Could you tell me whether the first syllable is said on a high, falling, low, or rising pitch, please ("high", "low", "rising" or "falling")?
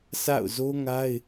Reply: falling